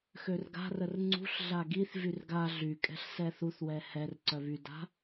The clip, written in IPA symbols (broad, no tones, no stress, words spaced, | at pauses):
xørɡa̤rər ŋ͡ǀṳɬ ɮaɡiθvyr ɡa ɮykʼɛ̤ɬ sɛθuθwɛ hɛr ǀœβyda̤